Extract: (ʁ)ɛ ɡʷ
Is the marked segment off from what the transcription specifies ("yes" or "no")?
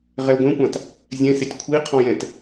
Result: no